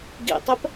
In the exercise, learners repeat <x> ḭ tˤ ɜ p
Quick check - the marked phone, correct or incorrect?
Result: incorrect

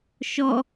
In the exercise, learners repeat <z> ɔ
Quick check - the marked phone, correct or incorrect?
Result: incorrect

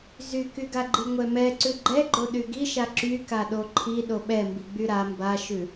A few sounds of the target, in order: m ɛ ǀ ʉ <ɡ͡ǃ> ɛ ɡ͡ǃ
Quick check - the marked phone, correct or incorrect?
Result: correct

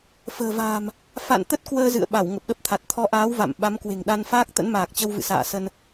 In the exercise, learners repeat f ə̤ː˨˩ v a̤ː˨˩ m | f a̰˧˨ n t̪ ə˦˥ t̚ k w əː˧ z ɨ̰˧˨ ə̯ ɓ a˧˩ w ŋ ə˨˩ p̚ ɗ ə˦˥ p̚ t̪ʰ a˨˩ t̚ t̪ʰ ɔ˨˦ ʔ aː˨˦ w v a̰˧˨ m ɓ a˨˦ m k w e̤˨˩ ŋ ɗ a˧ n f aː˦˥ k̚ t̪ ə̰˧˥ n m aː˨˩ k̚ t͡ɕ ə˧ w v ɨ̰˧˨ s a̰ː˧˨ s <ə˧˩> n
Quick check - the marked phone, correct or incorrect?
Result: incorrect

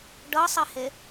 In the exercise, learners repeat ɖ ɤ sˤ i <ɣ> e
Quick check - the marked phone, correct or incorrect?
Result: incorrect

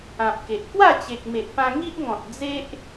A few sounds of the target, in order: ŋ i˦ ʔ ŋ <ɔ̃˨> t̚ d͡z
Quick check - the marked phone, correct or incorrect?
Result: correct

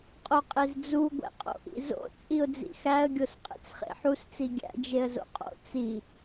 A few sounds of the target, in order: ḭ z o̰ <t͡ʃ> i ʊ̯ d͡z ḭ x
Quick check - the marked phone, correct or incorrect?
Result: incorrect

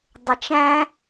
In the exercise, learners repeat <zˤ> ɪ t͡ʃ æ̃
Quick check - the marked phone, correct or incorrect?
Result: incorrect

